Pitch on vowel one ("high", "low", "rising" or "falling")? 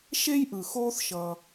high